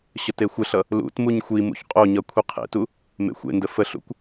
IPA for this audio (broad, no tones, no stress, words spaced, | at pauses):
ɕətexʷəɬʌ | lṵt muɲxʷimṵç qʼoɲʌ kʷʰiqʰḛtu | mḛxʷḛndə fəɬṵkʷ